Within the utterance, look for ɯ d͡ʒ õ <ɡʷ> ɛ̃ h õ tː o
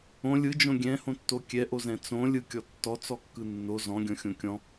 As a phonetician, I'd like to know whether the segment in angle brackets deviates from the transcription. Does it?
yes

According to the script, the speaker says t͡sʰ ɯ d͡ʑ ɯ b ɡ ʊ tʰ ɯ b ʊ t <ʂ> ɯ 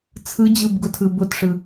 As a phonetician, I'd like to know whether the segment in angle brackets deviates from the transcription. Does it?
no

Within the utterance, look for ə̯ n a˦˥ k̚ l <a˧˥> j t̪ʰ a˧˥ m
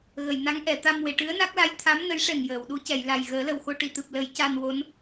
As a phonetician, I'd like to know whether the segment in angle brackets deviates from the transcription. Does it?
no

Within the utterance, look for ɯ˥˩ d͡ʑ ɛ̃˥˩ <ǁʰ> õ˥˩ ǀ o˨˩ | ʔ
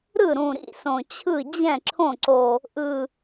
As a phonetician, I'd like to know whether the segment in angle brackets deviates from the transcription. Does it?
no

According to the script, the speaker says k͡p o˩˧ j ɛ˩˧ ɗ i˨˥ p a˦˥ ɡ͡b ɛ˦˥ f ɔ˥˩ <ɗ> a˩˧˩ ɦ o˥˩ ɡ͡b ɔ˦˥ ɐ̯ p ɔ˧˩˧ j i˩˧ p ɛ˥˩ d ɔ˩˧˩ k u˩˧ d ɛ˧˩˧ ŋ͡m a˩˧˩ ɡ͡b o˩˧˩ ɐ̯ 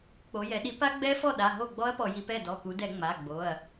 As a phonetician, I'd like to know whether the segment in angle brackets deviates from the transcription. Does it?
no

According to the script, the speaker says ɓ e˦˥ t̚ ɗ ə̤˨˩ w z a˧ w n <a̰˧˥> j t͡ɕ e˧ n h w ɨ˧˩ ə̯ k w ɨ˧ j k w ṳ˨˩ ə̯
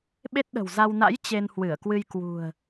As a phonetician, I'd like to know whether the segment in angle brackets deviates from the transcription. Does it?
no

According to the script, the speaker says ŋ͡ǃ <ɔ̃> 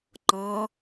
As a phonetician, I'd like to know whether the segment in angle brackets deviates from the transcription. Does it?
no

